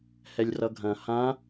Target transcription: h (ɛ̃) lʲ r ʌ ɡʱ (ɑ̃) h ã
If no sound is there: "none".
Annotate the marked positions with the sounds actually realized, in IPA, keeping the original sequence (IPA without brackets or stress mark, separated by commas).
ɛ, ɐ̃